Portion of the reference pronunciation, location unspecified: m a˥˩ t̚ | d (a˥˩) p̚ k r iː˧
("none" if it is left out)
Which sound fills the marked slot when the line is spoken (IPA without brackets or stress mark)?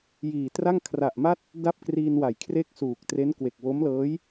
a˥˩